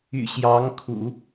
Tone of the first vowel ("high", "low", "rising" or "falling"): low